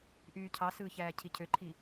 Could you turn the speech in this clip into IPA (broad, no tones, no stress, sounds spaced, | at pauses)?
ʔ yː cʰ ɑ s ɯː ç æː cʰ i cʰ ø ǃʰ i